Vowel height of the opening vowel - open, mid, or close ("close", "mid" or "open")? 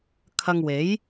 open